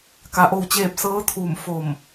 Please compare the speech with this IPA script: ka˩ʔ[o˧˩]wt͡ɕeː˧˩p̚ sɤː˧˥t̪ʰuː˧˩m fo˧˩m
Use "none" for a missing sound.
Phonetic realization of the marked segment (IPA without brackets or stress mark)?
o˧˩